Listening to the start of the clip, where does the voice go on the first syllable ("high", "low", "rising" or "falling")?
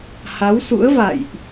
rising